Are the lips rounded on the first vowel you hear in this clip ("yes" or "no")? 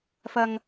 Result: no